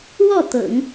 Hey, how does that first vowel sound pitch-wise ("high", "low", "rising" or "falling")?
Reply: falling